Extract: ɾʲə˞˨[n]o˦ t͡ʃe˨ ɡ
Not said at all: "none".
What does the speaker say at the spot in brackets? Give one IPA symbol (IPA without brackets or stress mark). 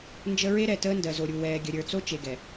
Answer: t͡s